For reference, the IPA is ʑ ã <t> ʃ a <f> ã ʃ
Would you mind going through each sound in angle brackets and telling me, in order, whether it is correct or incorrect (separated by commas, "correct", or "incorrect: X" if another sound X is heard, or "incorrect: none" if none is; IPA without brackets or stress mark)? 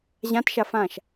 correct, correct